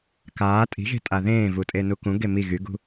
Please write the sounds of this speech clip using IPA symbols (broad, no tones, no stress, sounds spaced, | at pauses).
k aː tʼ i̤ ʒ e̤ tʼ a ð ẽː v u tʼ e n u k ũ ɡ e m i ɣ y ɡ ṳ